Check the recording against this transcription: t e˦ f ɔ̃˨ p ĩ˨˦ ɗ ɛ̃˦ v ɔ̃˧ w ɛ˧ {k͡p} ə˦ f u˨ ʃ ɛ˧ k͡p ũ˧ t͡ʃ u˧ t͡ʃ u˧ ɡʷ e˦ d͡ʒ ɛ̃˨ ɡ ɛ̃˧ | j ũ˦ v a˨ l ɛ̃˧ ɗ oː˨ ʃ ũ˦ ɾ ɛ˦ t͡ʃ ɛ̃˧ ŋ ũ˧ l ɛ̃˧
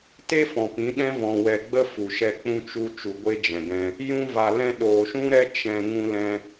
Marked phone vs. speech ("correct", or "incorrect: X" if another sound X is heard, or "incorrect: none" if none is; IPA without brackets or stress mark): incorrect: ɡ͡b